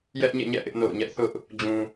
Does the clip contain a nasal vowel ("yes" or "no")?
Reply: yes